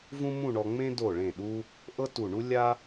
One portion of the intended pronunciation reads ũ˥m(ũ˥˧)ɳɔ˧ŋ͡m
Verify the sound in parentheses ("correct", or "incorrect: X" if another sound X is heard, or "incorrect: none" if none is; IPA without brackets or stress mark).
correct